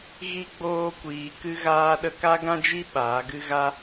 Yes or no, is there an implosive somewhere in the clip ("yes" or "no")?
yes